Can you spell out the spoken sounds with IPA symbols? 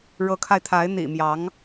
ɻ ɤ˧˥ kʰ a˧ ɪ̯ t̪ʰ a˧˥ ɪ̯ n̪ ḭ˨˩ m j ɑ˧˥ ŋ

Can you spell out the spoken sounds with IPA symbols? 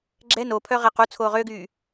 ɡ͡ǁ ɛ n o pʰ œ ʁ e q u t͡sʰ oː ʁ ø ɡ yː

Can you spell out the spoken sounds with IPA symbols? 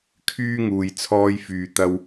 kʰ yː˥ ŋ uː˨ j t͡sʰ ɔː˥ j f yː˧ t̪ ɐ˥ w

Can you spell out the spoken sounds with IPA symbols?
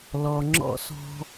l ɔ˨ ŋ͡ǁ ɔ̰˧ s ɔ̤˧

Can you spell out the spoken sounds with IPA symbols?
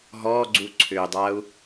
ɦ ɔ ɡ͡ǀ u ǀʰ ʏ dˤ a u̯

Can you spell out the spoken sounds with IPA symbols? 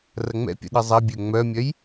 r ɐ ŋ͡m ɛ̰ pʲ ə̰ ɗ ə zˤ ɐ bʲ ø ŋ͡m œ mʲ œ j

